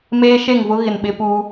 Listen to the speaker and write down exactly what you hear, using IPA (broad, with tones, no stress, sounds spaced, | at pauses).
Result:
m eː˦ ʃ e˦˨ ŋ v ʊ˦ ɣ ɪ˨ n ɓ ɪ˦ p uː˦